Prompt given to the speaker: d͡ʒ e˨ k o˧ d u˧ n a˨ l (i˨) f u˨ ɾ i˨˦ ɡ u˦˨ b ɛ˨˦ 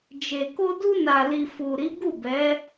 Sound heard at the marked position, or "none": i˨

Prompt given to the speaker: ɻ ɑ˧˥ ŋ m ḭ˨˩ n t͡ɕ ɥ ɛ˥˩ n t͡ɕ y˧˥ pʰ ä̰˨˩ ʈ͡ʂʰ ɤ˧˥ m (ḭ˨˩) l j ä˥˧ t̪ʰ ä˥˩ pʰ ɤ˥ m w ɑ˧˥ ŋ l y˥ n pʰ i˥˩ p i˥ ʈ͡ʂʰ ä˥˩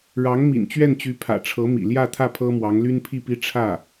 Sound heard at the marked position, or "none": ḭ˨˩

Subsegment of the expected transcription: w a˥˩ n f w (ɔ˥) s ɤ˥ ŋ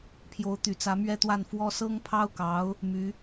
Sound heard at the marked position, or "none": ɔ˥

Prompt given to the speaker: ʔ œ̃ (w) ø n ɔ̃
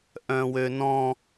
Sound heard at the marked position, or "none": w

